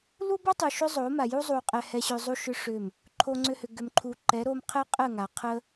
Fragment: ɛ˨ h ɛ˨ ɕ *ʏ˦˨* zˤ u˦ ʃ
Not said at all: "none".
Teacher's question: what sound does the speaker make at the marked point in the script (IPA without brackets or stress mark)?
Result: ʏ˨